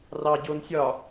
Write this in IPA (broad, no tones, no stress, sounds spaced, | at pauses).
r ɑ ɟ o n sʲ ɒ